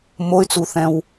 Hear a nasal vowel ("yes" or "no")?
yes